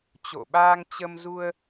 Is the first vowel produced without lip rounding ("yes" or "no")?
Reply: no